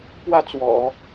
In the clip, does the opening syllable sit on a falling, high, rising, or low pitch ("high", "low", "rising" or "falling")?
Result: falling